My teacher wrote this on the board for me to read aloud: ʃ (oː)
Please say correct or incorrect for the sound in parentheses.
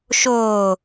correct